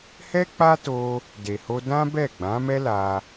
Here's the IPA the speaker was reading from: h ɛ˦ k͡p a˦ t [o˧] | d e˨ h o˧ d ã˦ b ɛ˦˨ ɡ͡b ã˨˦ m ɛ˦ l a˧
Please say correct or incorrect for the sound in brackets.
correct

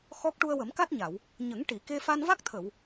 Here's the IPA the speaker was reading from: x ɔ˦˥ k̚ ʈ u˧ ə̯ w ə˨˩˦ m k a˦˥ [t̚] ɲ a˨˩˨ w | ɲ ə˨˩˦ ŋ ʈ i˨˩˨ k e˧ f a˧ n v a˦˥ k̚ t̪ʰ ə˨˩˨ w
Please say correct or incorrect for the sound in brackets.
correct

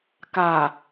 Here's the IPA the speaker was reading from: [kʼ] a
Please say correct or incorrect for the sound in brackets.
incorrect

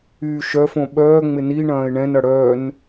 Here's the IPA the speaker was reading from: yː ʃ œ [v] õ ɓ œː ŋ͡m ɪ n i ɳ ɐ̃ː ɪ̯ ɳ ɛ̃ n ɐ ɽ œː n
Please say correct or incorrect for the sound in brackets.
incorrect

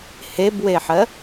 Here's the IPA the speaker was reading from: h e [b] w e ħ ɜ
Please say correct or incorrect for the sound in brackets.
correct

